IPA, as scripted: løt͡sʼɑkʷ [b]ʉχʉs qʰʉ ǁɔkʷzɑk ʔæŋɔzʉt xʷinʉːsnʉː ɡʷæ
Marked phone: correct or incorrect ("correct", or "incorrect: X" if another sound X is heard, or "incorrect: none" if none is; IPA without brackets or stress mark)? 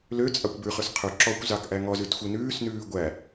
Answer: correct